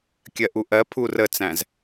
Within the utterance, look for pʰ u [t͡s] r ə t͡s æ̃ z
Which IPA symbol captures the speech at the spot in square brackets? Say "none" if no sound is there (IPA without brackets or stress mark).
none